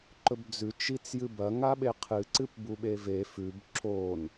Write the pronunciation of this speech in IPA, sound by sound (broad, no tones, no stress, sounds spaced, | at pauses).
ǃ ɵ b d͡z ʉ t͡ʃ i t͡s j ɨ b ɐ ŋ a ɓ e qʰ ɨ ǀ ɨ p b u ɓ e v e f ʉ b ǁ o n